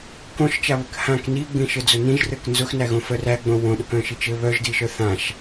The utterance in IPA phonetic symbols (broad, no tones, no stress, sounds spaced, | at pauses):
k õ ʃ t͡ʃ a β ɘ k h ã k n i ɡ͡b ĩ ʃ ɘ d͡z ʊ n ĩ ʒ r ɘ k n z ʊ x n æ ɣ õ f œ r æ ɡ͡b õ w õ ɗ ʊ k œ̃ ʃ i t͡ʃ ɘ β œ ʒ d i ʃ œ θ ã ʃ